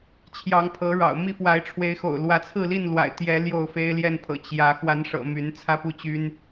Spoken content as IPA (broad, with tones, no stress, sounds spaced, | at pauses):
t͡ɕʰ j ɑ˨˦ ŋ pʰ ɤ˨˦ ɻ ɑ̰˨˩ ʊ̯ m i˥˨ f w a˨˦ ɪ̯ ʈ͡ʂʰ w e˨˦ ɪ̯ x o̰˨˩ ʊ̯ l w ä˨˦ t͡sʰ ɹ̩˥˨ l i˥˨ n l w a̰˨˩ ɪ̯ t̪ j ɛ˨˦ l j o˥˨ ʊ̯ f e˦ ɪ̯ l j ɛ˥˨ n pʰ ɤ̰˨˩ t͡ɕ j ä˨˦ x w a˨˦ n ʂ ɤ̰˨˩ m y˨˦ n t͡sʰ ä˦ p u˥˨ t͡ɕ y˦ n